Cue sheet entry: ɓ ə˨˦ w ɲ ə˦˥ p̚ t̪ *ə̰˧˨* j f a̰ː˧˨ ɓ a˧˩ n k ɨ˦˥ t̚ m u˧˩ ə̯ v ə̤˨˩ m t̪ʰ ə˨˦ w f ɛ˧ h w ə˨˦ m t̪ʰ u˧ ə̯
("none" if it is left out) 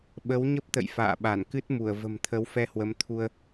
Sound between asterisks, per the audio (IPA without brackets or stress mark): ə̰˧˨